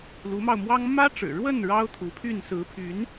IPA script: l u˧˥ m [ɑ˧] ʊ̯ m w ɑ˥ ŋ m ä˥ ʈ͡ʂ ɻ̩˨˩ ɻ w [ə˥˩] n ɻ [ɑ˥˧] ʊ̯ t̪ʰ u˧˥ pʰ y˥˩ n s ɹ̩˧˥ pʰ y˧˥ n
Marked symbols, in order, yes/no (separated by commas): yes, yes, no